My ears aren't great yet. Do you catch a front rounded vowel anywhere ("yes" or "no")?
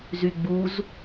yes